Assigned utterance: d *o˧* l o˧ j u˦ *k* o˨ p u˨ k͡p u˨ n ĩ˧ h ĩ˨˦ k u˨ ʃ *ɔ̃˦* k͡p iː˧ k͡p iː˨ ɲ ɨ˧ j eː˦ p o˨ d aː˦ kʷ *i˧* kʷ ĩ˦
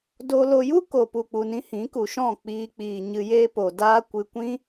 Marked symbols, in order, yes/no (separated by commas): yes, yes, no, no